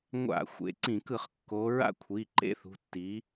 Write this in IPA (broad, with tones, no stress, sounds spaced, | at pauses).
ŋʷ a̰˧˩˧ xʷ ḛ˩˧˩ ǀ ĩ˧˩˧ k ɯ˧˩˧ χ kː o˨˦ ɹ a̰˥ kʷʰ i˩˧˩ ǃ ḛ˥ θ ṳ˩˧˩ tː i˨˦